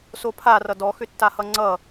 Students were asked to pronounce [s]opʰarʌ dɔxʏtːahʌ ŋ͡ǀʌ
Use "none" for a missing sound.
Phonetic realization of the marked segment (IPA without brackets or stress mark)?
s